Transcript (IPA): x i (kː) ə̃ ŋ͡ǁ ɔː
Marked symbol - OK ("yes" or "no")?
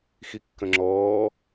yes